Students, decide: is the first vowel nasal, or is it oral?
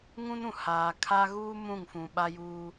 nasal